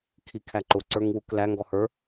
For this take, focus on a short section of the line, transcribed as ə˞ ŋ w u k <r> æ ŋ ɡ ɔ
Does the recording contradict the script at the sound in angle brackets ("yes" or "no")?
yes